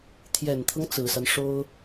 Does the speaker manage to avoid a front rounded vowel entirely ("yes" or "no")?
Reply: yes